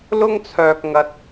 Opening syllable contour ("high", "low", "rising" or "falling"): high